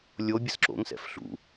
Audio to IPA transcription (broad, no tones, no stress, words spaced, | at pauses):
lʲo bʲəsǁo̰ŋsɛ̰f ɬṵ